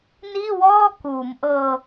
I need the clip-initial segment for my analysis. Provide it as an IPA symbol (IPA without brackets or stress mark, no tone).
n